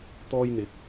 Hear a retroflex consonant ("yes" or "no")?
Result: no